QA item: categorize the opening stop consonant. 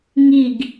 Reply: plain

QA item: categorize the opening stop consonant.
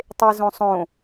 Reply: plain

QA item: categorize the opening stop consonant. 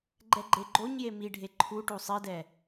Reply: click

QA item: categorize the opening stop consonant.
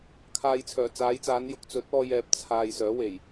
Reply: aspirated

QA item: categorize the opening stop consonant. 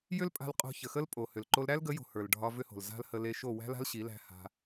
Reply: ejective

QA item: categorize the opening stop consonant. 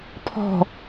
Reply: aspirated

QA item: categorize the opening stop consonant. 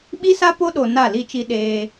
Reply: implosive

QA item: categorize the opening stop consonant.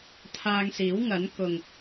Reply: aspirated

